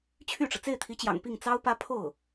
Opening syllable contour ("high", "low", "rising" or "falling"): falling